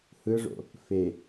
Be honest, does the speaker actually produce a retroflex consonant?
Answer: yes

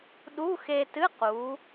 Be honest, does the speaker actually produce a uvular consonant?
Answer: yes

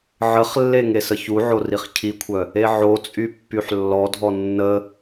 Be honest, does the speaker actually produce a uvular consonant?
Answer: yes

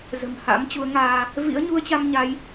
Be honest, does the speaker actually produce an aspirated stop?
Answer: no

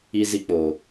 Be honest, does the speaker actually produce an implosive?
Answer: no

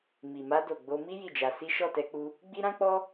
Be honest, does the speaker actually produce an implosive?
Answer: no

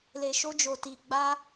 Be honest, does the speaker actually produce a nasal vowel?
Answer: no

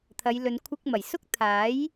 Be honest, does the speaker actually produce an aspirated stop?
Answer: yes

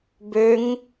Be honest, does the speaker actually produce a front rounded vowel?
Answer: yes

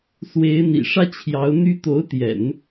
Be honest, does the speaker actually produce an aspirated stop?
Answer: yes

